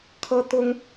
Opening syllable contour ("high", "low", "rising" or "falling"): high